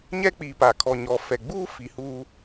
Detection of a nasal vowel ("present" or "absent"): absent